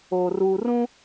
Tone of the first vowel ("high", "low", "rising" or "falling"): low